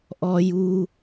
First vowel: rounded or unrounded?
rounded